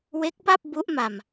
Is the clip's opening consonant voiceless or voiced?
voiced